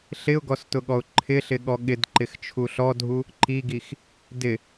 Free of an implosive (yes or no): no